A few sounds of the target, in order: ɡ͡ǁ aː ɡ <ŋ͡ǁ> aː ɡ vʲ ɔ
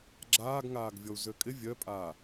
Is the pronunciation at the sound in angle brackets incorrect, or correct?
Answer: incorrect